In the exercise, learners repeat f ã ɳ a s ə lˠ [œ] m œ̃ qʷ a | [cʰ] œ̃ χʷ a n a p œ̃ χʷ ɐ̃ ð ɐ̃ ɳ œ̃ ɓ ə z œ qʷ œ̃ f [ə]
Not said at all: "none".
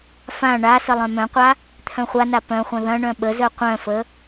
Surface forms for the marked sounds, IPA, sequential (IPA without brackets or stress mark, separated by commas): œ̃, t̪ʰ, ə